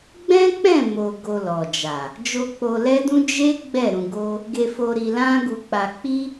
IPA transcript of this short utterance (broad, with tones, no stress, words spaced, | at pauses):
ɡ͡bɛ̃˦k͡pɛ̃˦˨ mo˧ ɡo˧lɔ˨d͡ʒa˨ | d͡ʒo˧k͡po˧ lɛ˦dũ˦ d͡ʒe˦ ɡ͡bɛ˦˨ɾũ˧ ɡo˦ | ɡe˧fo˧ ɾi˧lã˦ɡu˧k͡pa˧ k͡pi˦